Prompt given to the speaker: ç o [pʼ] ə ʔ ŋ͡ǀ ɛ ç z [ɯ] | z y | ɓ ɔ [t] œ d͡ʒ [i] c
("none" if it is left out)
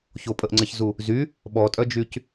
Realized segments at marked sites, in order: pʼ, u, tʼ, y

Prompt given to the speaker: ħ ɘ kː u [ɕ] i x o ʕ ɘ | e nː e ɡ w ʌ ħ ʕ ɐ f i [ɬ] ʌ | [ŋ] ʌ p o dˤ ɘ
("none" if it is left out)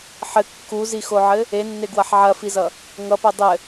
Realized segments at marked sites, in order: z, z, ŋ

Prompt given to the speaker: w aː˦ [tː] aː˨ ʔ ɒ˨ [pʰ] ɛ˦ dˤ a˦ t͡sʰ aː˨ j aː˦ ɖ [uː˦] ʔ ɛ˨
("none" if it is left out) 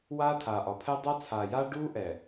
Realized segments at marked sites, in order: tʰ, pʰ, uː˦

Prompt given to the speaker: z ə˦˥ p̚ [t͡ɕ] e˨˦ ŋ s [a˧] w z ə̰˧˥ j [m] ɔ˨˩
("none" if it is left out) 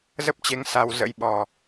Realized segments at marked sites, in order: t͡ɕ, a˧, ɓ

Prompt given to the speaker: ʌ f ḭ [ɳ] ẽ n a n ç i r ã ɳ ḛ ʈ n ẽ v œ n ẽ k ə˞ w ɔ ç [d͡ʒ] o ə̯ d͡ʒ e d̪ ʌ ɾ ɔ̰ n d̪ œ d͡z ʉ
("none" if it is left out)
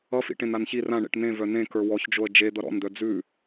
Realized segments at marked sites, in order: ʈ, d͡ʒ

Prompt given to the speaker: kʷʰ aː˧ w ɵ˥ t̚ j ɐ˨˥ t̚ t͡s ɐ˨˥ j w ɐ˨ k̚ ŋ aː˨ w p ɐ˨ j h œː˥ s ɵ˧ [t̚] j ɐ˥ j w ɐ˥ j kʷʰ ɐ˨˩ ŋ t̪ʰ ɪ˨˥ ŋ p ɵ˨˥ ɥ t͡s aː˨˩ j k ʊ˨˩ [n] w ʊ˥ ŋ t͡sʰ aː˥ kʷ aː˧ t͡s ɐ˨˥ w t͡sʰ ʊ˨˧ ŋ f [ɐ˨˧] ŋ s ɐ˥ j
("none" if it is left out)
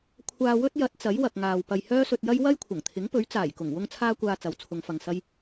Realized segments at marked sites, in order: t̚, ŋ, ɐ˨

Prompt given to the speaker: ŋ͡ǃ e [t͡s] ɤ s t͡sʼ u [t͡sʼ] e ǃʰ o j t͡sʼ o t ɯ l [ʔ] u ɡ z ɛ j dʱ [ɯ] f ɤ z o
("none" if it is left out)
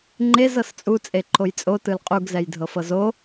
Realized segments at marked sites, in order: z, t͡sʼ, qʼ, ɤ

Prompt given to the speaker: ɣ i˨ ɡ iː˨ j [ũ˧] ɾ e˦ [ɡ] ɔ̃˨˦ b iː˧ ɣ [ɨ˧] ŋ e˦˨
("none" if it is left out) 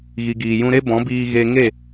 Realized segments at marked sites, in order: ũ˧, b, e˧

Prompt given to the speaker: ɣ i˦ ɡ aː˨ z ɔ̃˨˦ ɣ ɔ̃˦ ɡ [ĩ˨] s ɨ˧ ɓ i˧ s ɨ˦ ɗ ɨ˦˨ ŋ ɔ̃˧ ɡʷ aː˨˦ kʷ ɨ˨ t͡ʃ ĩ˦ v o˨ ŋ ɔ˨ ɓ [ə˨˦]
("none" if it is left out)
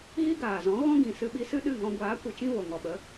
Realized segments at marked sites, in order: ĩ˨, ə˨˦

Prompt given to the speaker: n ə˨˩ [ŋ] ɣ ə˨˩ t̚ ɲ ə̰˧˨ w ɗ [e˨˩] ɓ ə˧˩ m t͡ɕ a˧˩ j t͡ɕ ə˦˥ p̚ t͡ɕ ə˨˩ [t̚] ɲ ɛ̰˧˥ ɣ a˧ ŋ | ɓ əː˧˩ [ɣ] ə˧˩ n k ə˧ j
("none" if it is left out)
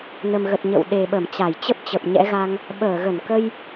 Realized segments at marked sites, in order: m, e˨˩, p̚, ɣ

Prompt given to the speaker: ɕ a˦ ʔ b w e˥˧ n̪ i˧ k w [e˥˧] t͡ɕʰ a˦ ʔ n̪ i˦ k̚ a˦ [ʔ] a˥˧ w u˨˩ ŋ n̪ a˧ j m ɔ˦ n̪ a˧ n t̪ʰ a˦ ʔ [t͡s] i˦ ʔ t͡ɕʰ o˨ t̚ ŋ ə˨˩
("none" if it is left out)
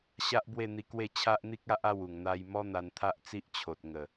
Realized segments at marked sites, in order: e˥˧, ʔ, t͡s

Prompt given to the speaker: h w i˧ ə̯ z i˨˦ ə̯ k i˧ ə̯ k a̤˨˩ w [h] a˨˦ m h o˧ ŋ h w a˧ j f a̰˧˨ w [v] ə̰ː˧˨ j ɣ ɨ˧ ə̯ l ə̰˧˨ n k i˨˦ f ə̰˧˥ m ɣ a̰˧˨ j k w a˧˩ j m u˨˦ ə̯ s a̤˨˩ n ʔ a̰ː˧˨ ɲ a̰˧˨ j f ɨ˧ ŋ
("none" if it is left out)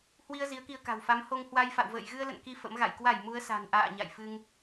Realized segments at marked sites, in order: f, v

